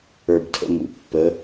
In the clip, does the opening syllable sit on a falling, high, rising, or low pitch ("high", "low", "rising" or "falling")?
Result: low